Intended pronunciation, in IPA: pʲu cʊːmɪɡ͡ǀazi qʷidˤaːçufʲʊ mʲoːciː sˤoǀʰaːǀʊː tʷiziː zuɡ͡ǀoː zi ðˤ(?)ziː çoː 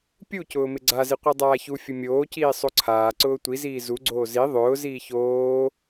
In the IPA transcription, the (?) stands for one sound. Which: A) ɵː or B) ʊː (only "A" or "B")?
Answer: B